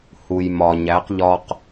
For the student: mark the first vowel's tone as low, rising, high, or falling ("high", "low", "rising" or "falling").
low